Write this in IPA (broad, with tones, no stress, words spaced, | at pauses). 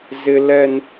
zɪ˦lɛ˦n